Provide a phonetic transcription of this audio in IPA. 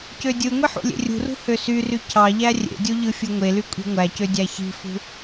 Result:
cødʲɯŋʷi ħṵlʲḛrʲṳrṳ høsyry cʰɑ ʎærʲḛdʲo ʎɯfʲɯŋʷely kʷʼi̤ŋʷæcø dʲæçi̤fṳ

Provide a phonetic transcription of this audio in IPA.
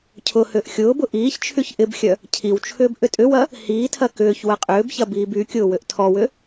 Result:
cʰʊ hʏːʔxʲʊːbʊ ʔiːçt͡ʃʰyç ʔɪbxʲœ | cʰiwt͡ʃʰʏːb ʔʏtʼʏwɐ | hiːtʰɐ kʏːç wɐqʼʏːbçɐ biːbykʲʊː wʏʔtʰɔwʏ

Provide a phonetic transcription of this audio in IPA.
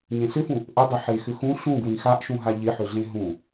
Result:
ɲẽsʏfũ | ʔədˤɪ ħexʏxũ ɬũɡwĩ xaʔʃũɦa ʎɪħʏɮẽ ɦũ

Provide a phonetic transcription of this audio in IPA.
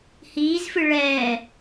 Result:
hiːzfɨ ɭɛː

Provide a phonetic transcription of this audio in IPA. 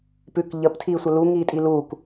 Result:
pʉk ʎəptʰiːsʷə luŋiː tʼiluːk

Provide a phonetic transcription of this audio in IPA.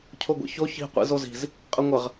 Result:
cʰoɡʷḭço çi̤ qʷḭzozi̤z | qʼəŋʷəʁ

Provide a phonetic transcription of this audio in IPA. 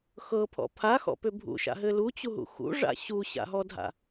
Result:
xɤpʰɔ̰ pʰaxɔ̰pʏ bʱṵʃa̰ɦɘ lut͡ɕuɦṵ xṵʐa̰ ɕuɕa̰ɦɔdʱa̰

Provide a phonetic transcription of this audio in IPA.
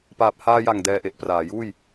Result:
paː˨˩p̚haː˧ja˨˩ŋ dɛː˧ʔe˨˩ʔpraː˩˦juː˥˩j

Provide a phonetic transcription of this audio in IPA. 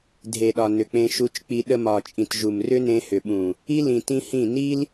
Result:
dʱe˨ɗɒ˨ nʏ˨k͡pẽ˧ʃu˧t͡ʃk͡pi˧ ɗə˧mɒ˨t͡ʃʼĩ˨t ʒu˨mrʏ˦nẽ˧ hʏ˨ɓũ˨ | i˦lĩ˨ tĩ˦hĩ˦˨ ni˦l

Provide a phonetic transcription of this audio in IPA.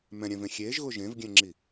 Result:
mɛ̃ɾʲɛ̃vẽ xʲeʒɣʊ ʒẽvɡʲɛ̃ŋ͡ǁi

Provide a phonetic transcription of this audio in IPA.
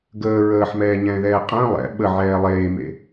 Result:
ɡəː ɹəːħmɛːɲɛ̃ːðɛː qʼə̃ː lˠɛ̰ ɓəʕɛː lˠeːmḛ

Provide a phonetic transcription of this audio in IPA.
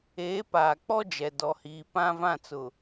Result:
eː˨˦paː˨k͡pɔ˦d͡ʒɛ˨ dɔ˨hiː˨ pã˦vã˦˨t͡sʊ˨

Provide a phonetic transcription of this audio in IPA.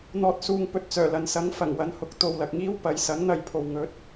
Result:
n̪ɔː˨t̚suː˨ŋpɵ˨t̚ t͡sœː˨˩lɐ˨nsɐ˨˥ŋ fɐ˨˩ŋwɐ˨˥nhʊ˨k̚ t̪o˨wlɐ˨k̚ŋiː˥w pɐ˨˧j sɐ˨˥ŋn̪ɐ˨˧jpʰo˨wŋɵ˨˥t̚

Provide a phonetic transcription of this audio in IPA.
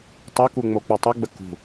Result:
tˤeku ŋ͡mok͡putˤuɡ͡bə kṳ

